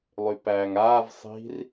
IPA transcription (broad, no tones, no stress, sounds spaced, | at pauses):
lˠ y p æː ŋ aː v sˤ i̤ r